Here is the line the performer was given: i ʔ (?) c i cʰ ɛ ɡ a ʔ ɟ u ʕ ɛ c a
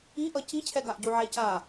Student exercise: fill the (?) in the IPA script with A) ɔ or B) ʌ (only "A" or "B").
B